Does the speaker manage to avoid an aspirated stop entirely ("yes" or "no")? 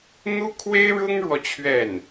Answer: no